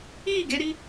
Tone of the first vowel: falling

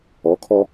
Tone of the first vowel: rising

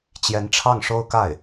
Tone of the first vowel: rising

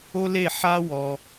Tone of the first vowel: high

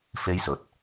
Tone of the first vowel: high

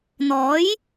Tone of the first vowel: rising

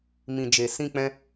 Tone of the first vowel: low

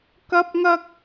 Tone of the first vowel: high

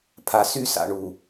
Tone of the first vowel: low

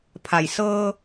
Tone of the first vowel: low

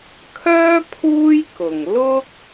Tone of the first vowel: high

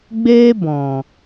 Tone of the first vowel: high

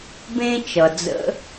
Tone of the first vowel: high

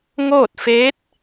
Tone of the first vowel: falling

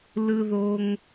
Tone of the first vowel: high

